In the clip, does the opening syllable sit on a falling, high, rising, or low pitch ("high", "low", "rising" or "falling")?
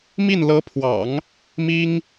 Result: falling